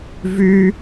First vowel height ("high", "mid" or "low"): high